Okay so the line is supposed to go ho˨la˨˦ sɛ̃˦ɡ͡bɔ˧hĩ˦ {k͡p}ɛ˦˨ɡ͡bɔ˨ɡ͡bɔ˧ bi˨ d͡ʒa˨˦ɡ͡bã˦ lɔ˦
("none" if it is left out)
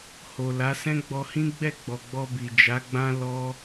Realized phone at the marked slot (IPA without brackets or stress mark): ɡ͡b